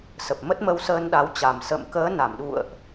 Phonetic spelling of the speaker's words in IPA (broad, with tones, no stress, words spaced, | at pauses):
sə˨˩p̚mə˦˥t̚mə˧wsəː˧n ɗa˨˦wt͡ɕa˨˩m sə̰˧˨m kəː˨˦na˧˩mɗṵ˧˨ə̯ʔ